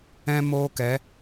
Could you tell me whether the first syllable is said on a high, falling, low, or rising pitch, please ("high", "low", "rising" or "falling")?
high